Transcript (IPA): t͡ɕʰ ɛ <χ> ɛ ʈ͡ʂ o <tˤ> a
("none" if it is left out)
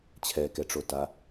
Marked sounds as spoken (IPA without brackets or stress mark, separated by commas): k, t